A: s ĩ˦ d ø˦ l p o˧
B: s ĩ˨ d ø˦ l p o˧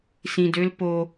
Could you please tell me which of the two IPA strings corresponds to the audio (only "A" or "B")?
B